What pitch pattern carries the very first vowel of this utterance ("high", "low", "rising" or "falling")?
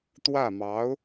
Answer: falling